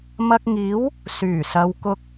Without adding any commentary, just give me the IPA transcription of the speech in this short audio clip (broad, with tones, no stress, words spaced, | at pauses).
mɐ˧k̚ŋiː˨˥w | syː˨˩sɐ˨˧wkʊ˧k̚